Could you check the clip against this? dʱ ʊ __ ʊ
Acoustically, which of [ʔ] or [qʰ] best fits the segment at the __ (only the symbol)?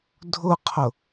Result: qʰ